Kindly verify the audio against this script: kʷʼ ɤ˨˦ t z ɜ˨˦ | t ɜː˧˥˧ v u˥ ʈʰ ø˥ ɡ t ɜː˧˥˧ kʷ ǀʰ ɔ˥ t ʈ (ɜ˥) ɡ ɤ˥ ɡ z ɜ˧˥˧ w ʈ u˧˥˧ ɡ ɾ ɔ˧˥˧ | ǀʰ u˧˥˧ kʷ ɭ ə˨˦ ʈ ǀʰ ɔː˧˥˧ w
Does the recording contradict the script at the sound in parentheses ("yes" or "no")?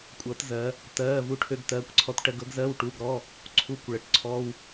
no